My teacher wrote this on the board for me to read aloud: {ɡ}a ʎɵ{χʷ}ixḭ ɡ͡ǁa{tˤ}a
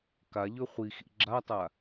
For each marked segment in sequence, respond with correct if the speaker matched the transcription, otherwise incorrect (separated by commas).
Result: incorrect, correct, correct